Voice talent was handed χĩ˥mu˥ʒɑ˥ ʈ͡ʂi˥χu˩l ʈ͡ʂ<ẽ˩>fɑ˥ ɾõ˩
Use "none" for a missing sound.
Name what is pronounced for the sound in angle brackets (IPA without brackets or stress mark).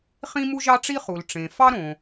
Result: ẽ˩